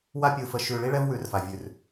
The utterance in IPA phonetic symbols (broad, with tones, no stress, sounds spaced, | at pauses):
w a˦ pʲ ɯ˧ f ə˧ ʃ ʉ˧ ɭ i˦ ɭ ɛ˦ v w ʉ˨˦ r f a˨ vʲ ʉ˨ r